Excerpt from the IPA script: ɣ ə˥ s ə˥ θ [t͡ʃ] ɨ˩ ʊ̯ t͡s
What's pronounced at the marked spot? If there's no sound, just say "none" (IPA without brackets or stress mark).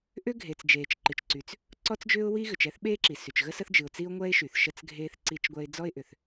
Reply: d͡ʒ